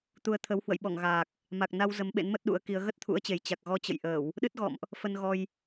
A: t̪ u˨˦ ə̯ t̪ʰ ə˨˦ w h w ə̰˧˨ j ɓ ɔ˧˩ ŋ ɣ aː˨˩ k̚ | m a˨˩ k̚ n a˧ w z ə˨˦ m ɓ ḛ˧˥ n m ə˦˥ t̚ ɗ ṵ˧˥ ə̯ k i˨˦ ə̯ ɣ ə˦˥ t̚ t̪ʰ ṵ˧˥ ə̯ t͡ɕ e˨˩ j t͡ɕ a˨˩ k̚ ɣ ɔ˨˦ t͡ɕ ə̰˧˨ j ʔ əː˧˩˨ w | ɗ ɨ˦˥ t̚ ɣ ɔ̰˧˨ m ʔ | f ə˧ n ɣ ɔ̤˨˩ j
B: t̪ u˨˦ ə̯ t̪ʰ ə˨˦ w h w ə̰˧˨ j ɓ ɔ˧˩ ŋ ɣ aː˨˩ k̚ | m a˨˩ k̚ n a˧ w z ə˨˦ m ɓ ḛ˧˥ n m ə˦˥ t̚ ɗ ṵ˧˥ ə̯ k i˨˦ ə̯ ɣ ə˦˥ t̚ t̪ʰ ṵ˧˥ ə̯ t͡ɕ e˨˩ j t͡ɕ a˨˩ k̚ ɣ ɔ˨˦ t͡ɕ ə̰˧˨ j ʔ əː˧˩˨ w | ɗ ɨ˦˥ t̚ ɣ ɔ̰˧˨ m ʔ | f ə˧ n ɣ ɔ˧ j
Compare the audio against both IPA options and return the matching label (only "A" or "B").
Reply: B